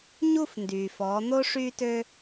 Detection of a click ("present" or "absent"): absent